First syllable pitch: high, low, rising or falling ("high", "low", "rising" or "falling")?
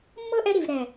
high